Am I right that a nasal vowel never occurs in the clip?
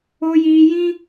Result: no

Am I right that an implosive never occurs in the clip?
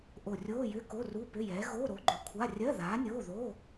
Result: yes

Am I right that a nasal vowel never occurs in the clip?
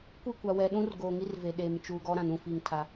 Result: no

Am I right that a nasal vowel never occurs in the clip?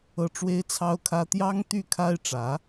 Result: yes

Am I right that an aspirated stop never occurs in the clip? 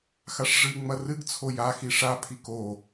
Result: no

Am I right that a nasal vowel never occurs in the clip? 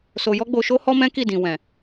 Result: no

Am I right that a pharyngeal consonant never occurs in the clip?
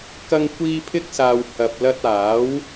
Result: yes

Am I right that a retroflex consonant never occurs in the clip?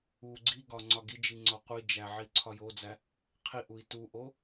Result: yes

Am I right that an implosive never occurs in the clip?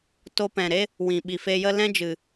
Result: no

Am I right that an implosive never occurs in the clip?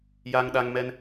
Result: no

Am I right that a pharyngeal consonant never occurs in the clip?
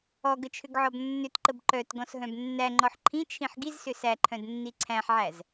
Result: no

